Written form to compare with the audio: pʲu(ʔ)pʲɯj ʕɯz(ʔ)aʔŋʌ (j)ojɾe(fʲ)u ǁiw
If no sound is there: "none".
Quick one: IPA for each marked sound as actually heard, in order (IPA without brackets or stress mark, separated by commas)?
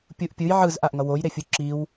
ʔ, ʔ, w, fʲ